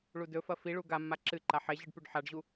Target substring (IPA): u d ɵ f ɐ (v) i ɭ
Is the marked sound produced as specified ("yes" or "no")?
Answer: no